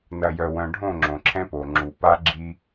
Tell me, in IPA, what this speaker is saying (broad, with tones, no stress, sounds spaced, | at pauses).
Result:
n ɐ˨ j œ˨ w œ̃˨ ɖʱ õ˦˨ ŋ͡ǁ õ˨ ǁʰ ɛ̃˦ p o˨ ŋ͡ǁ u˨ p a˦ ɡ͡ǁ i˦